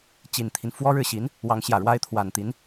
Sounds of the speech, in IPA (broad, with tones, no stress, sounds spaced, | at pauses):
t͡ɕ i˨˩ n t̪ʰ i˦ n f w ɔ˥ ɻ ɻ̩˥˩ ɕ i˧˥ n | w ɑ˧˥ ŋ ɕ j ä˨˩ ɻ w a˥ ɪ̯ t̪ʰ w a˨˩ n t̪ i˧˥ n